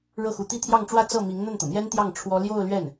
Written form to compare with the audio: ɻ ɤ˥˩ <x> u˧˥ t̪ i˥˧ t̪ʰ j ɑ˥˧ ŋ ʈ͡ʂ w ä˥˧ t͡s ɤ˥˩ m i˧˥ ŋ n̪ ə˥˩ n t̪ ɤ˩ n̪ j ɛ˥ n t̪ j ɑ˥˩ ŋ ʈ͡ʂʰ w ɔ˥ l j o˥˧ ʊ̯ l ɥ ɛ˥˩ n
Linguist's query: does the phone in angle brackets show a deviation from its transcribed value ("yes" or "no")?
no